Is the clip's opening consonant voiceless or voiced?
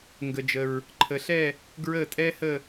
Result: voiced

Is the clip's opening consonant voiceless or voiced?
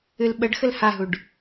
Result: voiced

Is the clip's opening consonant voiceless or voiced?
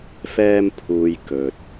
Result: voiceless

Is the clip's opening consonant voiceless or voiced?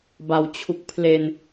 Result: voiced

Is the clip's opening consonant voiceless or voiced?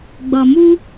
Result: voiced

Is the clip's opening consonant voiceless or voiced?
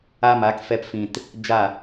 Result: voiced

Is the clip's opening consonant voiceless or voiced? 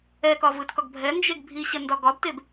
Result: voiceless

